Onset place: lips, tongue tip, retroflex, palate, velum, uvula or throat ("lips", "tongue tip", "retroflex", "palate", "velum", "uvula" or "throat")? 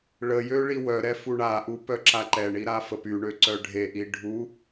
retroflex